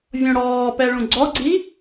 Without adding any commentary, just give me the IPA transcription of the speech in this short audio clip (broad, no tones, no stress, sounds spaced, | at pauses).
vʲ õ ɽ ɔː p ɛ ɭ ũ ɡ͡ǀ ɔ ɡ͡ǀ i